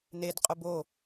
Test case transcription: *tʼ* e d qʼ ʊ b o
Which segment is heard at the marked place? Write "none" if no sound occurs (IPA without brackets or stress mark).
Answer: n